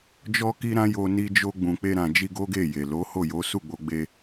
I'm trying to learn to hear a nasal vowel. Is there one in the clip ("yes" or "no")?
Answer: yes